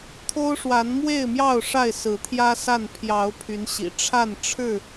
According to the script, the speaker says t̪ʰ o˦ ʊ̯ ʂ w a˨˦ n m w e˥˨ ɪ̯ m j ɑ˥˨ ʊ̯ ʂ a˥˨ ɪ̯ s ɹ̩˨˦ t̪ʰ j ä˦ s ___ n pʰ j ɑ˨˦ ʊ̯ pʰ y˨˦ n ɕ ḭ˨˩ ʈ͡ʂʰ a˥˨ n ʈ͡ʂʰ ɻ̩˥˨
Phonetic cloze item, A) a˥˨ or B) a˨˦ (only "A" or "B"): A